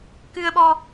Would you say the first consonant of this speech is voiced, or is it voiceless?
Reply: voiceless